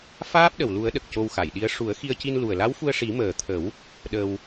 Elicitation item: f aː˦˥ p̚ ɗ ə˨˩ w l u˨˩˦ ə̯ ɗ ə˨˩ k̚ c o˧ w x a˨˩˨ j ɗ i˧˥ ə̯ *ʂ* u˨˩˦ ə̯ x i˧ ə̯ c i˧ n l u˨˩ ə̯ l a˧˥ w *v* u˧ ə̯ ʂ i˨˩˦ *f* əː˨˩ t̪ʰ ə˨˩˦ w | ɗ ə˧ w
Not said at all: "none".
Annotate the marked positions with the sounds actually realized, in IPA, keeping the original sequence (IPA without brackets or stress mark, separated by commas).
ʂ, f, m